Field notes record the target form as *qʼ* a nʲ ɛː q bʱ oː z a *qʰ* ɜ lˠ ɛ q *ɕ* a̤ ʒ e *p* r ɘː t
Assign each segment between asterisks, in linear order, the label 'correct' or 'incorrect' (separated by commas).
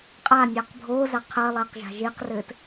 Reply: correct, correct, incorrect, incorrect